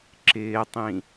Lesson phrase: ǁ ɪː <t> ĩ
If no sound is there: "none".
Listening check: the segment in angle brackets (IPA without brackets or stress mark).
tˤ